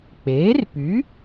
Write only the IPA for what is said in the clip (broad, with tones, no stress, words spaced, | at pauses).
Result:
k͡peː˩˥rpy˩˥